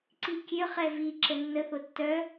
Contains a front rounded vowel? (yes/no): yes